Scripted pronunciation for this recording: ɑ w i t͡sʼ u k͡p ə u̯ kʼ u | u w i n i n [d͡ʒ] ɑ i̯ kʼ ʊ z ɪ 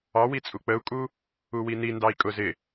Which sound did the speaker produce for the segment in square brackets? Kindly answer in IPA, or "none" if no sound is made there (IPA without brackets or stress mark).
d